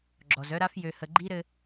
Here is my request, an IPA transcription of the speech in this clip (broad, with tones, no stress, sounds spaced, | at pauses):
ɡ͡ǁ ɔ˨ z œ˦ ɾ a˦ f j ø˦ h ə˦ ɡ͡ǃ i˦ ɾ ɘ˦